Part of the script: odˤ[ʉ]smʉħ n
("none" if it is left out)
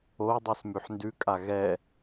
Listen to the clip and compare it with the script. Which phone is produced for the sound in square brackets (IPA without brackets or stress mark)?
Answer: ʉ